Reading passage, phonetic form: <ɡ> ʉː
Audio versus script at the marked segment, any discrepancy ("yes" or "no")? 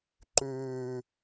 yes